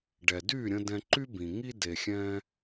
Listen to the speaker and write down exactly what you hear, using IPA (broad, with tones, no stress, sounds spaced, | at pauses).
ɖ ɛ˨ d y˦˨ ɾʲ ə̃˧ d ɛ̃˧ ǃ y˦ b ĩ˨ ŋ i˦ d e˨ xʲ ɛ̃˧